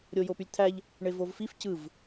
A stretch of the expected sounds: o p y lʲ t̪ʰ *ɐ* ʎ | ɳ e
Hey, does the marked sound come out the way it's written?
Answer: no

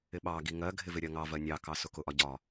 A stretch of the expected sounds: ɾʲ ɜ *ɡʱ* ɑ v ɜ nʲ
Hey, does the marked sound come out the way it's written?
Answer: no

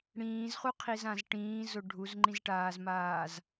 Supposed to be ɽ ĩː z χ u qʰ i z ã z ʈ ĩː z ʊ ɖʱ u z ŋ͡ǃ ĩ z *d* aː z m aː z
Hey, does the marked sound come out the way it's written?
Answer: no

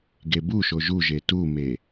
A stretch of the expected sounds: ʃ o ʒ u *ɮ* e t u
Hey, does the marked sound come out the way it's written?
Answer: no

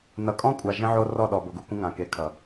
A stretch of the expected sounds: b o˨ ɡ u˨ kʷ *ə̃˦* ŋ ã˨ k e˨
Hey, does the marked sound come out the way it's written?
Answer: yes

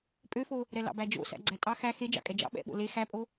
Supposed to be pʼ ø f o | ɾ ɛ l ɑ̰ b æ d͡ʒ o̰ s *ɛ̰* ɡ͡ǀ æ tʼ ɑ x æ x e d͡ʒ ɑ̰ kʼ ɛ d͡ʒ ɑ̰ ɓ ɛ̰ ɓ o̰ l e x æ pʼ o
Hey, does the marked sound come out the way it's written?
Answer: no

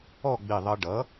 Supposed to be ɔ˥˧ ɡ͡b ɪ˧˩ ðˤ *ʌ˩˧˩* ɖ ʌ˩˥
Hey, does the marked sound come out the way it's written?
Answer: no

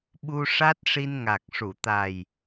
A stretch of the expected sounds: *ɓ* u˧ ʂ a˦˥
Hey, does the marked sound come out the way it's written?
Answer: yes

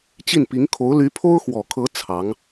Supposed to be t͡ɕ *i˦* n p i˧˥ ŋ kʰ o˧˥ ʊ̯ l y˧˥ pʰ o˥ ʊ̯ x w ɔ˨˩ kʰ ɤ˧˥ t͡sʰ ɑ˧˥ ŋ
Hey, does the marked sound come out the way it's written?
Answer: no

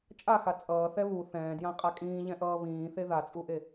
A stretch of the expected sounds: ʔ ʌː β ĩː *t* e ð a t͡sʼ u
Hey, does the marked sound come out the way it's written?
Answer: no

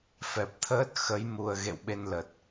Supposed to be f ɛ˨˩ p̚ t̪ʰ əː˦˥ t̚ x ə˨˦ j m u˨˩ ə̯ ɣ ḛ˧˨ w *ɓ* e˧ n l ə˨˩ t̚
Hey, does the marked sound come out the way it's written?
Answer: yes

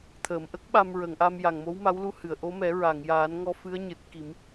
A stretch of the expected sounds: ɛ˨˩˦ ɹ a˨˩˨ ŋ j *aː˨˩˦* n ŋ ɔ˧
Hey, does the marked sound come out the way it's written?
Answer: yes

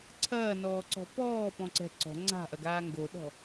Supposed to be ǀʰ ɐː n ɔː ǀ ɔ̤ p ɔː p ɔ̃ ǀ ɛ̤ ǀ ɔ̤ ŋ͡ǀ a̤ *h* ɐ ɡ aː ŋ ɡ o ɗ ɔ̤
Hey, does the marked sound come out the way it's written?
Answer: no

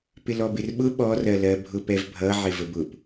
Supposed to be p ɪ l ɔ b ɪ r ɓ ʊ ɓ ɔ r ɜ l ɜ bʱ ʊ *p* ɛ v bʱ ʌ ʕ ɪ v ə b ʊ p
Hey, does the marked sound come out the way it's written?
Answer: yes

